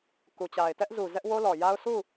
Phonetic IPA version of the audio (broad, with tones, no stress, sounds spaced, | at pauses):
k u˨ t͡ɕ a˨ ɪ̯ t ɛ˦ ʔ z u˨ z ɛ˦ ʔ w o˦ l ɔ˨ j a˦ ʊ̯ s u˦˨